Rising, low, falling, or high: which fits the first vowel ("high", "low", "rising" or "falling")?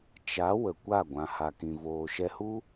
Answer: rising